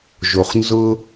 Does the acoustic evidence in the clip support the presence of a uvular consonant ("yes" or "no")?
yes